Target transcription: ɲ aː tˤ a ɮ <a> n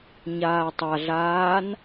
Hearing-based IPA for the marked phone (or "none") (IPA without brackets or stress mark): aː